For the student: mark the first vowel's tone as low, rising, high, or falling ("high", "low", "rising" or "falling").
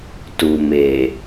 low